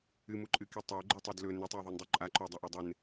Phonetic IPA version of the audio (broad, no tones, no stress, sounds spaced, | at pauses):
ɨ m u ǃʼ ɨ k i tˤ o ɡ͡ǃ ɨ tˤ o d l ɵ n ɵ tˤ e ðˤ e n dˤ u ǃʼ a ǃ ɵ dˤ ɐ ʔ o dˤ ɨ n